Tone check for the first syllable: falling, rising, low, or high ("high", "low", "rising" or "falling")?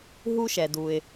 high